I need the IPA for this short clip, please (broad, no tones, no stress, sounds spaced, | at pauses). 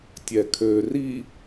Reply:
tʲ ɛ kʰ ø r i